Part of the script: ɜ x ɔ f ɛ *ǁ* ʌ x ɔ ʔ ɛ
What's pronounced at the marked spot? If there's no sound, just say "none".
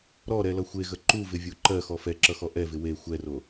ǁ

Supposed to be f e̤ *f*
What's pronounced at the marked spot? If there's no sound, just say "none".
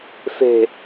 none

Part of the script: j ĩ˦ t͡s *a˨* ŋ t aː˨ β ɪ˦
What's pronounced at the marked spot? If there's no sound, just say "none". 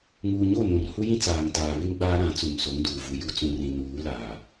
aː˨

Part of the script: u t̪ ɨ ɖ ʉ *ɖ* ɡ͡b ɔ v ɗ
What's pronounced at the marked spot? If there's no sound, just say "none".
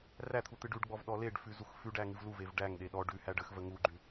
ɖ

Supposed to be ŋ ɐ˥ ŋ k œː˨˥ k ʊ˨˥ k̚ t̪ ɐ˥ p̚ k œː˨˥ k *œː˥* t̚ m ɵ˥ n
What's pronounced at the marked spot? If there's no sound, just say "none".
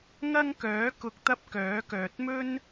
œː˨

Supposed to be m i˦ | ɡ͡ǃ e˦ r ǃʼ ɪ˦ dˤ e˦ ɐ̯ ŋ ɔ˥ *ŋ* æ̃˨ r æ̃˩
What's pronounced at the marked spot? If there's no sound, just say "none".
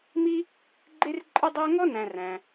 n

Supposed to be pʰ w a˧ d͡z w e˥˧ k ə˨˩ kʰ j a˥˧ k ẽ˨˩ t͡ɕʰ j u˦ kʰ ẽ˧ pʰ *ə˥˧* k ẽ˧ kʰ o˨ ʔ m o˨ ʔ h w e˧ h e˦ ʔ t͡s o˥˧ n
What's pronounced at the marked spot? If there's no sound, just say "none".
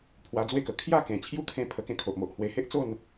ə˧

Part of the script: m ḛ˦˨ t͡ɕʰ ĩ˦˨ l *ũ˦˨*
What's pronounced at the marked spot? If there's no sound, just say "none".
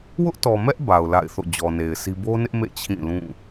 ũ˦˨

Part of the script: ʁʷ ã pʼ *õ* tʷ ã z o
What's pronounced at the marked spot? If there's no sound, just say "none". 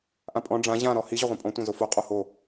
ɔ̃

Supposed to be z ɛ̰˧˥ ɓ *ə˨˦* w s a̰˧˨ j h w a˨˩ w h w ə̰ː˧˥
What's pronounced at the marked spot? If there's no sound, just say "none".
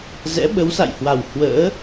ə˨˦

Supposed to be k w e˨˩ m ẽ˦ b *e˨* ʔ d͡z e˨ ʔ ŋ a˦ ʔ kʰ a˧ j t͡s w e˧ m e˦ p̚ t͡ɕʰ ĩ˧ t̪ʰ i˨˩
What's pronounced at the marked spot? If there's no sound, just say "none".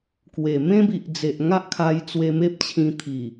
i˨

